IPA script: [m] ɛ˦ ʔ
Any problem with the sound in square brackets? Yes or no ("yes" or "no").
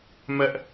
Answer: no